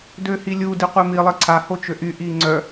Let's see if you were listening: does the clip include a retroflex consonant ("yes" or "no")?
no